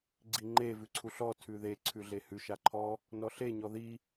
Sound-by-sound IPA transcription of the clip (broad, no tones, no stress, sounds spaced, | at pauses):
ɡ͡ǀ i ŋ͡ǃ e v ʉ ǀʰ u ɬ ɔ tʰ ʉ ð e ǀʰ ʉ ɮ e h ʉ ʃ a ǃʰ ɔ | n ɔ ɬ e ɲ ɔ ð i